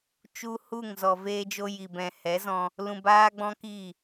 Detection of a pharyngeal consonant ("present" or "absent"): absent